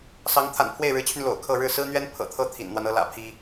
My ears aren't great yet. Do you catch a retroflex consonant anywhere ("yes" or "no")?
yes